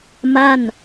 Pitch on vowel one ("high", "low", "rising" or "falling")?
falling